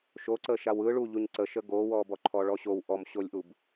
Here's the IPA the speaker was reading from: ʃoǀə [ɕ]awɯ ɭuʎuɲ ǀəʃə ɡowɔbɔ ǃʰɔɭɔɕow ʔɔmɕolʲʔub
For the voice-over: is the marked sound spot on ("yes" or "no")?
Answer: no